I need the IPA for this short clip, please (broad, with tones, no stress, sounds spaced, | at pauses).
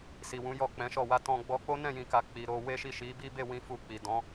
s i˨ w ũ˨˦ j ɔ˦˨ k͡p ɛ̃˨˦ ʃ ɔ˦˨ w a˧ t ɔ̃˧ ɡ͡b ɔ˧ k͡p o˦ n ɛ̃˦˨ j ĩ˨ k a˨ k͡p i˨ ɾ o˧ w e˦ ʃ i˦˨ ʃ i˨˦ b i˦ b e˦˨ w ĩ˧ f u˧ k͡p i˨ d ɔ̃˨˦